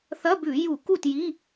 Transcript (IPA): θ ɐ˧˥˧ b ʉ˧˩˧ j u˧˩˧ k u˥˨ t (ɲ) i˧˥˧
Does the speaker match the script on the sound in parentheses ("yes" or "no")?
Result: no